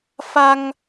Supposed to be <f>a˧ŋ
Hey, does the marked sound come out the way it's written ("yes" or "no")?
yes